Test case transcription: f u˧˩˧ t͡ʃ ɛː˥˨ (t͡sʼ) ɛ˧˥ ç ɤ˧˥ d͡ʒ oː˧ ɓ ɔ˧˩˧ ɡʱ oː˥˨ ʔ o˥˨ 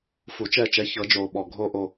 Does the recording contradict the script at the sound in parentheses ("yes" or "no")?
yes